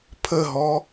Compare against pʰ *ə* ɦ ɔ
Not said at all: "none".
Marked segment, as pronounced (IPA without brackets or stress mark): ə